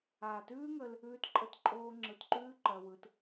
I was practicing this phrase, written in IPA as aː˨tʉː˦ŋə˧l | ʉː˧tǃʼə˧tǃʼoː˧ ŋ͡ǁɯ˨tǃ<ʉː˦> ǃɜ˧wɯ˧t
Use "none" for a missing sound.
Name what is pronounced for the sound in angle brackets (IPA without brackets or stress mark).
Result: ʉː˦